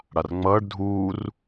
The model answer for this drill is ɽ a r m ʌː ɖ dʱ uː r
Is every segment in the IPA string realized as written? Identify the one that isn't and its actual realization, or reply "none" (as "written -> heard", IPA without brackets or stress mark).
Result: m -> ŋ͡m